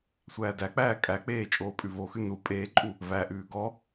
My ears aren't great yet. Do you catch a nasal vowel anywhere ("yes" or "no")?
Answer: no